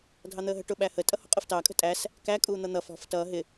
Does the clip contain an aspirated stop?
no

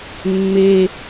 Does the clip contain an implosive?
no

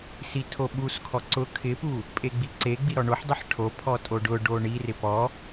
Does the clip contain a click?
yes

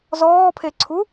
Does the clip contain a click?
yes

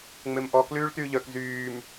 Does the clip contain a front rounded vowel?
yes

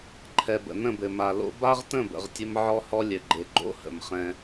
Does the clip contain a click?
yes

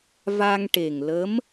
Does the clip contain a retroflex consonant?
yes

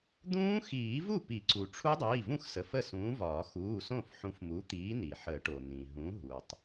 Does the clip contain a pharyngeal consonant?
yes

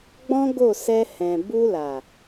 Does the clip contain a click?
no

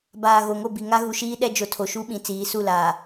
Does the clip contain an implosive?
yes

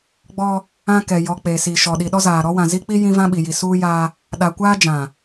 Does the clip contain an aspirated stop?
no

